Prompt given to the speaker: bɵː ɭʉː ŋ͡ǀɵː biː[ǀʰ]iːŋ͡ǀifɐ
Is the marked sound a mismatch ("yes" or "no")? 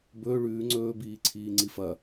no